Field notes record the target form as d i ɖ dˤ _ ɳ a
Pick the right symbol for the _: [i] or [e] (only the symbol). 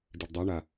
e